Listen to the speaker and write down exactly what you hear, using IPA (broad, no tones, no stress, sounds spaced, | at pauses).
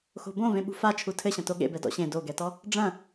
x o̤ b õ v ẽ ɓ ṳ f a t͡ʃʰ u tʰ ɘ ɕ ɐ̃ t o ɠ ḛ b ɛ d ɔ̰ ɕ ẽ d o ɡ ɛ t ɔ | ɖ͡ʐ ɐ̃